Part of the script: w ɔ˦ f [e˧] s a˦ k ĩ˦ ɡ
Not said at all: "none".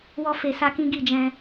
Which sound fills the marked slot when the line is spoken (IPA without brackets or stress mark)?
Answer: e˧